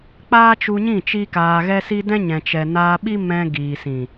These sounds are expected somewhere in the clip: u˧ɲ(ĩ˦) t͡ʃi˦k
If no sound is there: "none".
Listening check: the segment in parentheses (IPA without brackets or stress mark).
ĩ˦˨